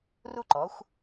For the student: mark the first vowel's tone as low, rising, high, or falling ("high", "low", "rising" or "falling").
high